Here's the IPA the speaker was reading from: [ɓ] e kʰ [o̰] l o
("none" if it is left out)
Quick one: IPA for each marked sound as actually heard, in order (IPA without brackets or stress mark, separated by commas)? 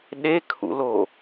ɗ, ṵ